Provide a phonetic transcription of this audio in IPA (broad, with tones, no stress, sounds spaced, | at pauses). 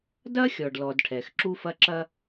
d ɐ˥ xʲ ɔ˩ ɖ l ɔ˩ d ʈʰ ɛ˩ x ǁ u˧ f ɐ˧ ǁ ɐ˧